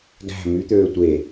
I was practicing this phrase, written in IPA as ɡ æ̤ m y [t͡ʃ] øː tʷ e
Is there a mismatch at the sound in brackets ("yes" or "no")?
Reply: yes